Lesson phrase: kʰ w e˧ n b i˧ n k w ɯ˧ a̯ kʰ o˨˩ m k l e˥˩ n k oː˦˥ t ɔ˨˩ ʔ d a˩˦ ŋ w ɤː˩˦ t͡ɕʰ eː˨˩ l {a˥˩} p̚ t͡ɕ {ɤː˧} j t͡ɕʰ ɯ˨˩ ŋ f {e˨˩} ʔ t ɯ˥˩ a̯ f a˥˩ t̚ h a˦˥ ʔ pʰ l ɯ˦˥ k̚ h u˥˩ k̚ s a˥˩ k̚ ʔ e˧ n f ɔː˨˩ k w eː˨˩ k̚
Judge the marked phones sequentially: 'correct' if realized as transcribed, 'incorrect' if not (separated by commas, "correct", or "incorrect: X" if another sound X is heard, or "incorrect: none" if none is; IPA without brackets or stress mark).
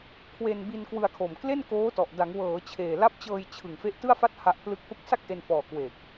incorrect: a˦˥, correct, incorrect: e˦˥